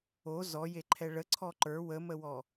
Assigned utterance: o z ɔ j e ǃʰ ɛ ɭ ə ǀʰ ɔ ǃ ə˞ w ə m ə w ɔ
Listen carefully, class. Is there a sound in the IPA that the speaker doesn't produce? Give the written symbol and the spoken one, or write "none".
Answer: none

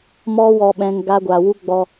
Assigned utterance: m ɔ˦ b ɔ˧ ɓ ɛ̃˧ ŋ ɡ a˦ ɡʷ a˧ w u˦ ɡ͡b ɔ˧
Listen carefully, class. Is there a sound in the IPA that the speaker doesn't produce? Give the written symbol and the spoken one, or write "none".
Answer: b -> w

